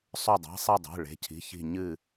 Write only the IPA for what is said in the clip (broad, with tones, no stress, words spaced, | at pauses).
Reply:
sˤɵ˧˩dˤa̤˩˧˩sˤi˧˩dˤe̤˩˧˩ ɭe̤˩˧˩cʰi̤˩˧˩çi̤˧˩ ɲɨ˧˩